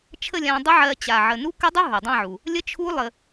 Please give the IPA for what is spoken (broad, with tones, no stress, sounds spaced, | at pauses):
t͡ʃʰ ə˥˧ lʲ ã˧ dˤ ə˦˥ ʕ ɜ˧ t͡ɕ a˨˩ ʕ ə˨˩ n u˦˥ k ə˦˥ dˤ u˦˥ ɦ ɵ˨˩ dˤ ã˥˧ ʕ u˨˩ | lʲ ə˦˥ t͡ʃʰ u˦˥ lˠ ə˧